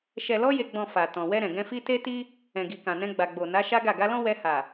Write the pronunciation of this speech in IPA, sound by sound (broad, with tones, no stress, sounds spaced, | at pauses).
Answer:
ʃ ɛ˨ l ɔ˧ j e˨ ɡ͡b ɔ̃˨ f a˨ t ɔ̃˨ w ɛ˧ ɾ ɛ̃˨ ɡ ɛ̃˧ f i˦ t e˦ t i˦ | ɛ̃˨ ɡ i˨ k ã˨ n ɛ̃˧ ɡ͡b a˨ ɡ͡b o˨ n a˨˦ ʃ a˦ ɡ a˦˨ ɡ a˧ l ɔ̃˦ w ɛ˧ h a˨